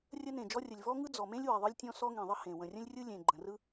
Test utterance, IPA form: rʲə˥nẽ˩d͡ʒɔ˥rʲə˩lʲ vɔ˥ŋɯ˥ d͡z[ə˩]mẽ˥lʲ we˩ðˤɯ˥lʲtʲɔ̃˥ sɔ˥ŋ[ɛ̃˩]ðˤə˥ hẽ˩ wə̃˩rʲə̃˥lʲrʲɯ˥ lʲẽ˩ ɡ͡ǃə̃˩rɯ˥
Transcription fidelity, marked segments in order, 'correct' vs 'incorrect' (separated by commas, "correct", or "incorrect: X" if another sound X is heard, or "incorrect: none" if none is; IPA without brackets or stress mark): incorrect: ɔ˩, incorrect: ẽ˩